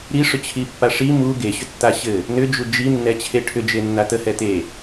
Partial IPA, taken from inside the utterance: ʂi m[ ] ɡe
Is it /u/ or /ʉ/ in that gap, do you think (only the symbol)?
u